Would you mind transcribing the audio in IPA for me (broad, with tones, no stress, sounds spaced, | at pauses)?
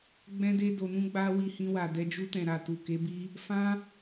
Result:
ɡ͡b ɛ̃˦ d e˦ d o˧ n ũ˦ ɡ͡b a˧ w i˧ h ĩ˧ w a˨ d ɛ˧ d͡ʒ u˧ t ɛ̃˨ ɾ a˨ t u˨ k e˨˦ b i˦ | f ã˦